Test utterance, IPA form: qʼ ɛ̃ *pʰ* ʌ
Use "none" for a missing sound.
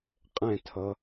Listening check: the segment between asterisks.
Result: tʰ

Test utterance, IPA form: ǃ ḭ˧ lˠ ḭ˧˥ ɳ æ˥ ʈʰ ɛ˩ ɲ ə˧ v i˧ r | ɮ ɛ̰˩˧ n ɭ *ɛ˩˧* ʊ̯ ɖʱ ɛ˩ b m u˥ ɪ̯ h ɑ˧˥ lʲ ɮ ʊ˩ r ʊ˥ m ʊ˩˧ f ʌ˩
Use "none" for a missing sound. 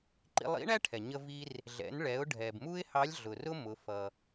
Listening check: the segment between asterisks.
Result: ɛ˩˧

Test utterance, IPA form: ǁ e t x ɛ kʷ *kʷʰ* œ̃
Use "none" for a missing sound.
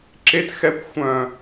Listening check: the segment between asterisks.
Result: xʷ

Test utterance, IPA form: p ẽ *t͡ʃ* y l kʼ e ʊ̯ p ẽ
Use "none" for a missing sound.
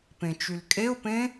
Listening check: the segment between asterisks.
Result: t͡ʃ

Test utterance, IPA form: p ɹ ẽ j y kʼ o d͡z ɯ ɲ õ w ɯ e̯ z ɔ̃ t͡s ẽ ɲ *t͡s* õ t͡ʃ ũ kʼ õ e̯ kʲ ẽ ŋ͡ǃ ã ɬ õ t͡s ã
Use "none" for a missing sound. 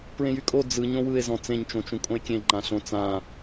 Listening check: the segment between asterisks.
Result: t͡ʃ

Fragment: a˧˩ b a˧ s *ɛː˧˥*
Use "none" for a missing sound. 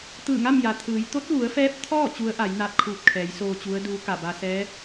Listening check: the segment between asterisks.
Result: ɛː˧˥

